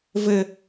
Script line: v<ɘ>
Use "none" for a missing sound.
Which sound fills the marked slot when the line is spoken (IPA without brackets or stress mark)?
ɘ